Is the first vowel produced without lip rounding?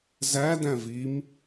yes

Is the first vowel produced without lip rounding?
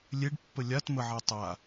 yes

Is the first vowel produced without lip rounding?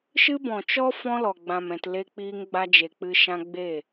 yes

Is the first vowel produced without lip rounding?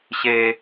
yes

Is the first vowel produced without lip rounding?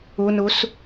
no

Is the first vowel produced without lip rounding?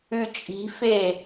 no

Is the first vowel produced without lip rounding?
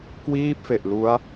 yes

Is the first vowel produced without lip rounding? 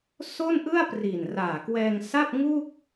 no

